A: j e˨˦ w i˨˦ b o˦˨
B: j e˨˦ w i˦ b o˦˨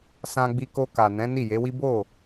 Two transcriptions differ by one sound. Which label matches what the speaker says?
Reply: B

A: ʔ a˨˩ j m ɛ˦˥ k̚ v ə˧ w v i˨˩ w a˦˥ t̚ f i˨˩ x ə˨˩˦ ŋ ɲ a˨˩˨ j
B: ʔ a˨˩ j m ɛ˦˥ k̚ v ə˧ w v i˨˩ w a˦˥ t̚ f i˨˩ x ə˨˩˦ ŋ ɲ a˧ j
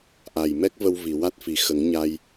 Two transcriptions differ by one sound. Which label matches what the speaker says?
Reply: B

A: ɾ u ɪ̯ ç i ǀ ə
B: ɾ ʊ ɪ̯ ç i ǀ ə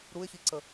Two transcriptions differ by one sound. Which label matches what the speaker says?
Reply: A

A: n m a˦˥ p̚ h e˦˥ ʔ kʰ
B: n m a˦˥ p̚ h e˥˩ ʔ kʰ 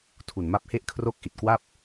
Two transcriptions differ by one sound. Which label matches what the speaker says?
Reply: B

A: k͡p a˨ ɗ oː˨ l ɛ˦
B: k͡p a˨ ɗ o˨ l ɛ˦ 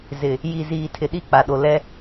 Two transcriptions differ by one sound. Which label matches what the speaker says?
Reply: B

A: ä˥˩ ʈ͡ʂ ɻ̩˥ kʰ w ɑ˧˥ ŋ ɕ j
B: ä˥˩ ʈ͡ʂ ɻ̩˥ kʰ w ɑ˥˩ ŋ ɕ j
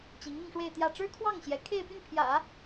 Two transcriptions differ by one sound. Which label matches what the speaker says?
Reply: B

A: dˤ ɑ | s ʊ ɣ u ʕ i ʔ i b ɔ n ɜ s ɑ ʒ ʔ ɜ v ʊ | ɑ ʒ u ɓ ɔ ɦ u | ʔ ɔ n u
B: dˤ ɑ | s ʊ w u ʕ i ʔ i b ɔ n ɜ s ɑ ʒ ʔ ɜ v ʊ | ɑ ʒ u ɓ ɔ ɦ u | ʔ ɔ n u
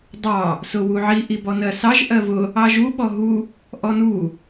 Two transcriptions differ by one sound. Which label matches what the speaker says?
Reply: B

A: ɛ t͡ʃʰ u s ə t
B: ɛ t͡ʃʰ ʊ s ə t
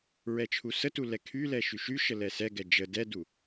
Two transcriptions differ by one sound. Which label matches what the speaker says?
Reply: A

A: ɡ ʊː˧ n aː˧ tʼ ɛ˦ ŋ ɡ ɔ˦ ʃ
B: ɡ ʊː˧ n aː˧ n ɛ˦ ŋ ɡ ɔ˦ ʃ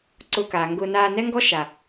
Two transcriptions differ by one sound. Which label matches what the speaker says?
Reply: B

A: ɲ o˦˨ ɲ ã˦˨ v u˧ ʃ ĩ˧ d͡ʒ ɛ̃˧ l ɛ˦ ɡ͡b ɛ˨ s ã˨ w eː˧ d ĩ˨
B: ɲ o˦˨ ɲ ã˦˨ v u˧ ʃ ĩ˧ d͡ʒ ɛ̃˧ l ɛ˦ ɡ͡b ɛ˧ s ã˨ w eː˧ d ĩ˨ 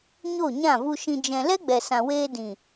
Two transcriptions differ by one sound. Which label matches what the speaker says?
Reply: A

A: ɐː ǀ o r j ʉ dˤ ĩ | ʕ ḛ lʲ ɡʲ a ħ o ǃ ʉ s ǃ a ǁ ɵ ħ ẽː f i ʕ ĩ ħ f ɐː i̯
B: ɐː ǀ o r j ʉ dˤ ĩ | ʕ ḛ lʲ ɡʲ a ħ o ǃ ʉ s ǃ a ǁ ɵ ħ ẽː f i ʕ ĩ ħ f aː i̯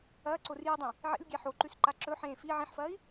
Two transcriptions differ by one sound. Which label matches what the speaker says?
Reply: A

